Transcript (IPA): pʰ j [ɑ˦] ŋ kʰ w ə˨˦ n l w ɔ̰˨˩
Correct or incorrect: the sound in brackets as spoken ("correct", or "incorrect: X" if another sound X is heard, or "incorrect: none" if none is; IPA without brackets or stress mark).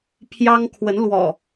correct